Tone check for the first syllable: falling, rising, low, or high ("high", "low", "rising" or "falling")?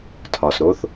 low